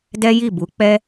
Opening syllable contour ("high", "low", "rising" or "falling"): high